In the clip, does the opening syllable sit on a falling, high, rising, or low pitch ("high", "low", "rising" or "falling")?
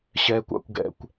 low